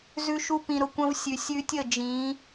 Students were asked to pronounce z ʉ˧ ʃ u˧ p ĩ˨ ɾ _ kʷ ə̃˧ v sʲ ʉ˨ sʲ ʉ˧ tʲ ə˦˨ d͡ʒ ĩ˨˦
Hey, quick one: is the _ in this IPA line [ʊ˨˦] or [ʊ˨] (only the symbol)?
ʊ˨